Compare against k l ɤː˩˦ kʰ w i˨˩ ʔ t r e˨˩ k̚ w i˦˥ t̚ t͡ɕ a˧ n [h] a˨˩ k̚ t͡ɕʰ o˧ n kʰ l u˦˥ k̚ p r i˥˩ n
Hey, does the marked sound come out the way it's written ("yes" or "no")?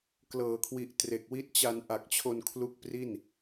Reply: no